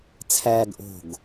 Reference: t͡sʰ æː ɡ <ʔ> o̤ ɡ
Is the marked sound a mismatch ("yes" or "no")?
no